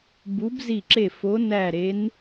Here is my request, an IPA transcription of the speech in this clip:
b u˨˦ b z i˧˩ ǁ e˧˩ f o˨˦ n æ˧˩ ɾ e˨˦ n

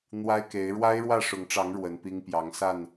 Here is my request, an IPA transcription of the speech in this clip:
n̪ w a˦ ɪ̯ k e˨˦ ɪ̯ ɻ w a˦ ɪ̯ ɻ w ä˥˨ ʂ ʊ˨˦ ŋ ʈ͡ʂ ɑ˨˦ ŋ ɻ w ə˨˦ n p i˦ ŋ p j ɑ˨˦ ŋ s a˥˨ n

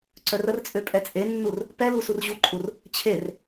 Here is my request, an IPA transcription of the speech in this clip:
ǀ œ r ə r t͡sʼ ø pʼ ɛ t͡sʼ e nː u r | p ɛ l u s u r ʑ u ǃʼ u r | t͡ɕʰ e r

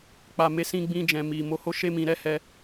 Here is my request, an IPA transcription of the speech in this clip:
k͡p a˨ m e˨˦ s ĩ˧ ɡ͡b ĩ˧ d͡ʒ ɛ̃˨ m i˨ m o˧ h o˦ ʃ e˦ m ĩ˧ ɾ ɛ˦ h ɛ˦

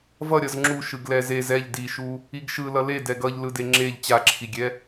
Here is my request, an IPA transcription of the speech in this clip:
v ʌ ɾʲ ʌ z ŋ͡ǁ u ʃ ɯ ɡ l ɛ z e z ɛ ʎ d i ʃ u | i ɡ ʃ ɯ l ʌ l e d ɛ ɡ ʌ ʎ l ɯ d e ŋ͡ǁ e ʎ t͡ɕ a ǁʰ i ɡʲ ɛ

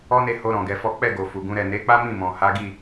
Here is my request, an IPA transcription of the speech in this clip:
ɔ˦ n e˦˨ h o˧ ɾ ɔ̃˨ ɡ ɛ˨˦ f ɔ˦ k͡p ɛ˦˨ ɡ o˨ f u˨ ɡ ũ˨˦ ɾ ɛ˦˨ n e˨˦ k͡p a˦ m ĩ˦˨ m ɔ̃˨ h a˨˦ ɡ i˦˨

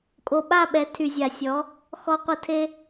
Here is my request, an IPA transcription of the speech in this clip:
kʼ o˨ ɓ a˦˨ ɓ ɛ˨˦ tʰ y˨ zʲ a˨ sʲ ɔ˨˦ | x ɔ˧ qʷ ə˧ tʰ e˦

